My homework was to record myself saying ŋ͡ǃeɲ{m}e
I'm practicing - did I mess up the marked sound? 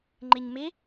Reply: no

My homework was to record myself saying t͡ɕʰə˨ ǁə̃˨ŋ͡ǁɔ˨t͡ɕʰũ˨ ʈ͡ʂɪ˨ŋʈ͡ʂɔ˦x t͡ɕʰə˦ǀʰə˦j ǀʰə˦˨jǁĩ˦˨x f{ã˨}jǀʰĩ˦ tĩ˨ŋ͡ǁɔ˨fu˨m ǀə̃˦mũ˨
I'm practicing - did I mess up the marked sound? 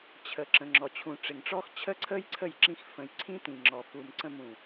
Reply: yes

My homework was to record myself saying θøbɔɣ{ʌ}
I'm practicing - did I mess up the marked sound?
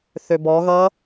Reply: no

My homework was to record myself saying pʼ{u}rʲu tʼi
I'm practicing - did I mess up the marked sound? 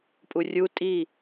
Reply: no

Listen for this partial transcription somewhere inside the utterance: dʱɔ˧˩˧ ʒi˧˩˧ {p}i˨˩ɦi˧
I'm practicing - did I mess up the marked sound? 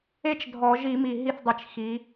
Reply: yes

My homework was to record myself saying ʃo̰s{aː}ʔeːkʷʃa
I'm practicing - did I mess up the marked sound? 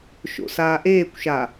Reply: no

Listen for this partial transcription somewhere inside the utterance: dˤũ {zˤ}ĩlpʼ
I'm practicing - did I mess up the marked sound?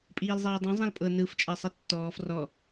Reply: no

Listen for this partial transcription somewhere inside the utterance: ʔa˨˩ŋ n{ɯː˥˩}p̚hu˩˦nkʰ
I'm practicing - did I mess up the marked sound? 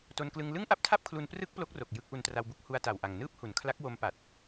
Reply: no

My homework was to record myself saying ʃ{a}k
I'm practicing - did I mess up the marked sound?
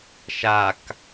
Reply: no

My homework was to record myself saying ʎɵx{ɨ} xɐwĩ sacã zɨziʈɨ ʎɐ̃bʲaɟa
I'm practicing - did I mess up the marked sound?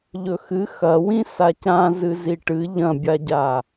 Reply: no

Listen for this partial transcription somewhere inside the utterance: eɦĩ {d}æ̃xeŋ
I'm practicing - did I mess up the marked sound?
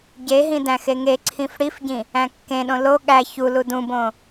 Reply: no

